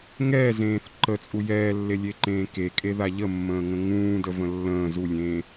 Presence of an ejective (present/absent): present